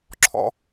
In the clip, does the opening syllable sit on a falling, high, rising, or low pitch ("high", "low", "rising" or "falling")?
high